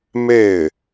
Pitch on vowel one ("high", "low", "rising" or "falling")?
falling